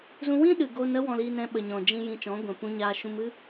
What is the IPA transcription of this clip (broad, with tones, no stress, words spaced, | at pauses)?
zũ˧wĩ˦ɗɨ˨ ɡo˧nə˦ wɔ̃˧li˧nɛ̃˧ ɓə˨ɲɔ̃˨ d͡ʒĩ˧ jĩ˧t͡ʃɔ̃˨˦ɡʷɛ̃˨ pũ˧ɲaː˧ ʃũ˧mɨ˦